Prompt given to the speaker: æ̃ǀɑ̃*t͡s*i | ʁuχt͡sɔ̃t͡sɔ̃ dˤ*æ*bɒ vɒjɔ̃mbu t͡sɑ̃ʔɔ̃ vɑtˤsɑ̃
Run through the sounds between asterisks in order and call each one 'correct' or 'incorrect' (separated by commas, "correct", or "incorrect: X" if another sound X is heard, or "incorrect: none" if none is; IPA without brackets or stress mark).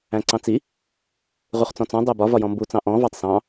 correct, correct